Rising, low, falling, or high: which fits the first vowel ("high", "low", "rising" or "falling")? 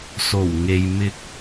low